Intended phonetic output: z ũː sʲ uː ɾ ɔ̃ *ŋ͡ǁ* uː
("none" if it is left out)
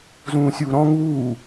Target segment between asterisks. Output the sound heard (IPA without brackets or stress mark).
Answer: ŋ